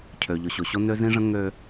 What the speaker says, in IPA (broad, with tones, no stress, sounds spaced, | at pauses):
cʰ ø˨ ʎ ʊ˨ ɕ o˨ ɕ o˦ n ø˦ z ĩ˦ ʐ ə̃˦ ŋ ø˦